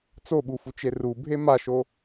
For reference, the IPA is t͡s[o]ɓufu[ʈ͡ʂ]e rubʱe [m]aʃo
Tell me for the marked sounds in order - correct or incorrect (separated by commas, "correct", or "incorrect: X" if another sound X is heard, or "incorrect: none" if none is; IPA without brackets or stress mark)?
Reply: correct, incorrect: t͡ʃ, correct